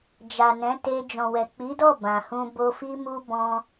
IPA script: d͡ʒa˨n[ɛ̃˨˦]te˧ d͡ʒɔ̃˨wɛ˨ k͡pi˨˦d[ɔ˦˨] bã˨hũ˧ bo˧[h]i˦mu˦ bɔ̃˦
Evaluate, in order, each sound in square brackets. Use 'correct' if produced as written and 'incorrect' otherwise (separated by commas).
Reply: correct, correct, incorrect